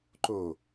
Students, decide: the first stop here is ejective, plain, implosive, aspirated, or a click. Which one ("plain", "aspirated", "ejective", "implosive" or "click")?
click